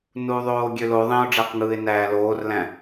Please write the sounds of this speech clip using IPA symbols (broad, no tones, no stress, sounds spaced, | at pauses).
n u ðˤ oː ɡʲ ø l o ðˤ ẽ ʊ̯ ɖ͡ʐ æ q ŋ ɯː ɪ̯ n æː l oː r l æ̃